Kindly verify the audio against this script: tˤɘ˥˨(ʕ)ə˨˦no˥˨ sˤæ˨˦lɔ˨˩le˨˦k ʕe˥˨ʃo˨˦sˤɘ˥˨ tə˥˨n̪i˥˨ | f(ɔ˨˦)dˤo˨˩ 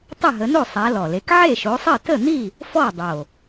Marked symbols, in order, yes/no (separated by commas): no, no